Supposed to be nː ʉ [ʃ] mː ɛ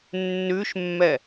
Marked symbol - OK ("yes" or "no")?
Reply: yes